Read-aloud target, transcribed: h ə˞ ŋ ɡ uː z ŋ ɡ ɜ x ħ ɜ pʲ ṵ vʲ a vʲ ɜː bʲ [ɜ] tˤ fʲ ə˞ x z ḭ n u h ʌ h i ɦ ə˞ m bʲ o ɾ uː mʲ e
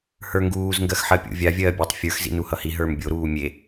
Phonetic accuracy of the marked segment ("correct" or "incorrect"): incorrect